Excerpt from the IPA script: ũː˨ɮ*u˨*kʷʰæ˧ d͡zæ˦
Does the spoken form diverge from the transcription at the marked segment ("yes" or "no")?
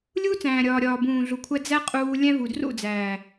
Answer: no